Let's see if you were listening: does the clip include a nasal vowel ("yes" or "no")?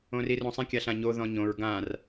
yes